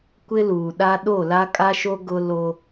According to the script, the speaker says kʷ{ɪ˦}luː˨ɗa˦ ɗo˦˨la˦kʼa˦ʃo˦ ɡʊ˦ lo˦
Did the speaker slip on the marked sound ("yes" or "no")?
no